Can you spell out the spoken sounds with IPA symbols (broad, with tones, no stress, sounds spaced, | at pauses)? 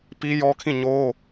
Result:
p i˦ j ɔ˦ kʰ ĩ˦˨ ɲ o˦